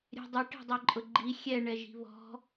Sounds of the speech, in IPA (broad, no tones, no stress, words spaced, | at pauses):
ɾʲɛ̤dˤʊ ʈe̤dˤɛǃʼʊɡ͡ǃi xʲɛɳɛʒi̤ βɔ̤